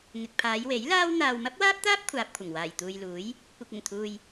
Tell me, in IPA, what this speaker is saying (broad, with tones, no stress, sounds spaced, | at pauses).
ŋ ɪ˨ k̚ pʰ aː˨˧ j w e˨˥ j l aː˥ w n̪ aː˨ w m ɐ˥ p̚ w aː˥ p̚ t̪ aː˥ p̚ kʷʰ aː˨ p̚ kʷʰ ɐ˨˩ ŋ w aː˨˩ j t̪ uː˨ j l uː˨˥ j | kʷ ɐ˨ k̚ ɪ˨˩ ŋ t̪ʰ uː˨ j